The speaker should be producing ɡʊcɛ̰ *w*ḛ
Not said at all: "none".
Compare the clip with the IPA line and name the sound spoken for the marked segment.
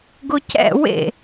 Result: w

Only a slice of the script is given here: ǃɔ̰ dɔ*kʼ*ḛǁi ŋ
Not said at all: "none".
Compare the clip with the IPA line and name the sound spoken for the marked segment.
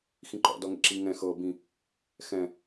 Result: ŋ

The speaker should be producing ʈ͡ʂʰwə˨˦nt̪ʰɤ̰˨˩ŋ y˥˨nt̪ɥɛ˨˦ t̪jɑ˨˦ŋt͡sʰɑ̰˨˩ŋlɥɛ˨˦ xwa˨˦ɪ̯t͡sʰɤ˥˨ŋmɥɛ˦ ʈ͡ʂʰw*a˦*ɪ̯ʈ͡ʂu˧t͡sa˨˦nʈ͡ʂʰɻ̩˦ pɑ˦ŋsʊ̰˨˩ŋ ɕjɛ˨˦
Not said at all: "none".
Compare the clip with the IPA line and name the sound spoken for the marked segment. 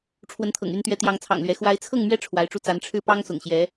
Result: a˨˦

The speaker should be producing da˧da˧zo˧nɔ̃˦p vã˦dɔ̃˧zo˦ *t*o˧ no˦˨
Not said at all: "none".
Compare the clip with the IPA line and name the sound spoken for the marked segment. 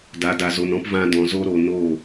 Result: ɾ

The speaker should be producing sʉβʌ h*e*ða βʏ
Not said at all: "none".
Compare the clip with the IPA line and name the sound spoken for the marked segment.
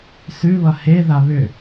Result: e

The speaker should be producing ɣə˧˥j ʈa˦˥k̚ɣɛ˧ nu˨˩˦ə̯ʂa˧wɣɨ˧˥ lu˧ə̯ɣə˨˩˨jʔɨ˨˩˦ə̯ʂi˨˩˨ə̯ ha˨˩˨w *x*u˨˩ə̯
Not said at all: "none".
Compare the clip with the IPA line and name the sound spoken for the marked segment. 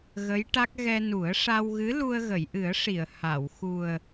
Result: x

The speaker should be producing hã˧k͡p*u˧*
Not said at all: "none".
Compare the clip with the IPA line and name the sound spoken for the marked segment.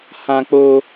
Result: o˧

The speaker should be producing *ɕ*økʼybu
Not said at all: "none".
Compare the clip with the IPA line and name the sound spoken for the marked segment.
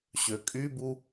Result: ɕ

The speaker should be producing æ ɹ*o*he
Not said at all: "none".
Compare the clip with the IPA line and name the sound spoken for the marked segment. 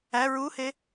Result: u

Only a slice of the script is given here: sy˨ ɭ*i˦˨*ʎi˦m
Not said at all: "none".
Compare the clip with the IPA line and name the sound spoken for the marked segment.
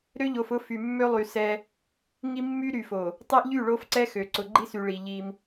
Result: i˨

